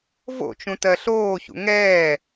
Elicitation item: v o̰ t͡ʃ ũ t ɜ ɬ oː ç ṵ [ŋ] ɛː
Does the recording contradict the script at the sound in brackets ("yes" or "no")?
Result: no